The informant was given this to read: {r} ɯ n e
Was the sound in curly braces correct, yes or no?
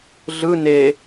no